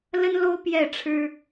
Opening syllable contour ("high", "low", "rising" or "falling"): high